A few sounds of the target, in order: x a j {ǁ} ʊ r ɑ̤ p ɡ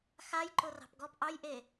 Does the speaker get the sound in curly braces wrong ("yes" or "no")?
yes